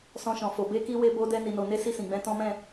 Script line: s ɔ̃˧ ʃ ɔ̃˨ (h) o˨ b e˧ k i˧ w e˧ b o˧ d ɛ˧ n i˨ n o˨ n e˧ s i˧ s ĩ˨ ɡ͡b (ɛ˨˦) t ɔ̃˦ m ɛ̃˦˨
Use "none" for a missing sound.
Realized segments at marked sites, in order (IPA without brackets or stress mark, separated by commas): f, ɛ̃˨˦